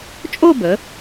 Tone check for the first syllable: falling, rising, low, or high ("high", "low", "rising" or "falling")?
falling